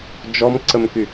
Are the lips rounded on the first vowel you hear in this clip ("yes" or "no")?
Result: yes